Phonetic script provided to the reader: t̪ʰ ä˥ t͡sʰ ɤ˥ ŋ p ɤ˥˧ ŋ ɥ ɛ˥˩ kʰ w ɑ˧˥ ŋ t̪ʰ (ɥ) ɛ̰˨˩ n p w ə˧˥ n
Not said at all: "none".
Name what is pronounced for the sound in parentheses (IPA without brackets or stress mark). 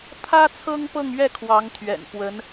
ɥ